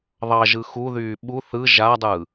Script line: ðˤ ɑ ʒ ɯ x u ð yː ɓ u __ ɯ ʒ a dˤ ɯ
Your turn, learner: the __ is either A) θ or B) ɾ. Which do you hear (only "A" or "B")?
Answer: A